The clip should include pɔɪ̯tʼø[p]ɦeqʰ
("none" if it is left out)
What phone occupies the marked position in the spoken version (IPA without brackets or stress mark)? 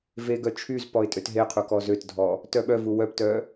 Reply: t